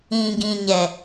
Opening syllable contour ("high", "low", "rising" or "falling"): low